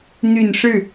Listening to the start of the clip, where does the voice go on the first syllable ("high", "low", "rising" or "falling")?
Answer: low